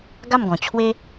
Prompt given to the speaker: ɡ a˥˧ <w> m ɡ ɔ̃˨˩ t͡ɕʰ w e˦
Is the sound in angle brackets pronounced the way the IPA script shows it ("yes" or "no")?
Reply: no